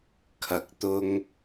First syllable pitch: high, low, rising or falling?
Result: rising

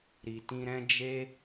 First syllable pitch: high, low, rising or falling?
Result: low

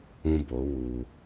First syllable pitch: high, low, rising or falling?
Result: high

